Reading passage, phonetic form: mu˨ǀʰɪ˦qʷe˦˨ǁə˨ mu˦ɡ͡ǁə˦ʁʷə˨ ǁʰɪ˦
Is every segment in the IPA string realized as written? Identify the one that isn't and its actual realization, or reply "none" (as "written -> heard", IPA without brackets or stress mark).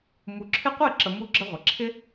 ǀʰ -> ǁʰ